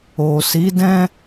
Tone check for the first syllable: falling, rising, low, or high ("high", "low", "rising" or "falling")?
low